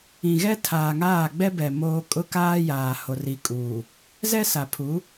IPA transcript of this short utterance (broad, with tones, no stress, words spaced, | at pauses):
ĩ˨ɣɛ˦ tʰaː˨ŋaː˦˨ɡ͡bɛ˦bɛ˨ moː˦ kʼʊ˦kaː˦ jaː˨ ho˨ri˨kʼuː˨ | zɛ˦sa˨pʰu˨˦